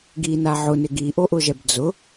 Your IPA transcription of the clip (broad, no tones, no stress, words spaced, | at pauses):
ɡina ʕʊnɪ ɡiʔoʔʊʒɛb d͡zʊ